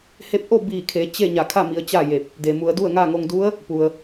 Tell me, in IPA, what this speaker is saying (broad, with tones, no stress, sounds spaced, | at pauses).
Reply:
h e˧˥ p̚ ʔ o˥˨ b iː˧˩ kʰ e˩˧ t͡ɕ e˥˨ ɲ a˧˩ kʰ a˥˨ m i˩˧ ə̯ t͡ɕ a˥˨ j e˧˩ p̚ | d e˩ m u˩˧ ə̯ d u˥˨ ə̯ ŋ a˥˨ ŋ o˧ ŋ d u˧˥ ə̯ | p u˩ ə̯